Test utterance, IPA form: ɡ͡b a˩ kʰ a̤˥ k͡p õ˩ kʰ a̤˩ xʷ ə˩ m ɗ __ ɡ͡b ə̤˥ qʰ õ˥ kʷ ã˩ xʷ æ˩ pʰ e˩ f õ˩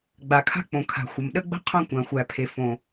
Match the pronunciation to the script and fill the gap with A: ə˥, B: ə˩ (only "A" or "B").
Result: A